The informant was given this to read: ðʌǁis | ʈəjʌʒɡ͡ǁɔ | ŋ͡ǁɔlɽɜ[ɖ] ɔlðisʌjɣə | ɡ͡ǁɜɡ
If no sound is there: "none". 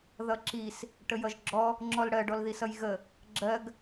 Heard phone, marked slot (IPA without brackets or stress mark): ɖ